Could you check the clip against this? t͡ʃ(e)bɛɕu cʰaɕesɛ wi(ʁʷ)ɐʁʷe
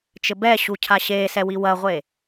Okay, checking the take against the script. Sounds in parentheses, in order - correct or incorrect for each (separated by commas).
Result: incorrect, incorrect